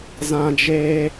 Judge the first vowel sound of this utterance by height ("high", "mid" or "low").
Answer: low